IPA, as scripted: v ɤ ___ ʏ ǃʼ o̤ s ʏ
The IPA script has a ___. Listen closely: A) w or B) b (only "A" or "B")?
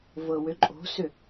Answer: A